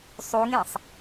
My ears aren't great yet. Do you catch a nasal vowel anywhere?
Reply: yes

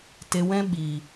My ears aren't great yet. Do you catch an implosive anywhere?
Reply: yes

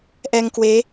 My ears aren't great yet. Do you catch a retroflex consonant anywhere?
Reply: no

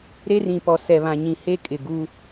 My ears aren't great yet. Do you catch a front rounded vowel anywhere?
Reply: no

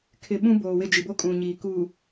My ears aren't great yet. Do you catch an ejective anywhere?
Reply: yes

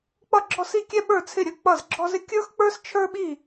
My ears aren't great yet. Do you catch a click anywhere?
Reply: yes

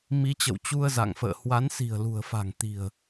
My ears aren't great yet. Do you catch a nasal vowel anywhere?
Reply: no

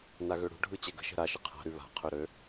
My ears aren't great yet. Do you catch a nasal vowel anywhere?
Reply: no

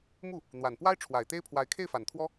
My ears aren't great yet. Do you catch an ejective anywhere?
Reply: no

